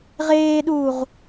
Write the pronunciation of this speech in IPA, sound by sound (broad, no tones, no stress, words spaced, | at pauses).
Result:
ʁeːɗuːʁ